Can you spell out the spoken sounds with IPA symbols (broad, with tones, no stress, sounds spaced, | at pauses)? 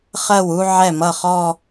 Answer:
χ ɜ˥˩ w u˥˧ ʕ ɛ˥˩ m ʌ˥˩ χ ɔ˥˧